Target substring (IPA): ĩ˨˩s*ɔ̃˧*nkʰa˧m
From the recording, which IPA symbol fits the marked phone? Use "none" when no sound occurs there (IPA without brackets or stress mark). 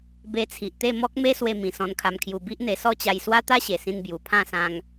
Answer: ɔ̃˧